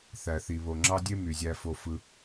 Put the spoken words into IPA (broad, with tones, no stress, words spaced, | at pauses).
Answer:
θæ˨θi˨ βo˨ŋ͡ǁɑ˦dʲe˦ my˨zʲæ˧fo˧ fɯ˧